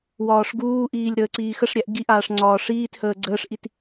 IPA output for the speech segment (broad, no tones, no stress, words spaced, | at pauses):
wɒːʂɡuːʔiːlʲ ɾəːǀiːxəʂɾʲæʔ ɡiʔaːʂ ŋ͡ǀɒːʂiːthəː ɡ͡ǀəːʂʔit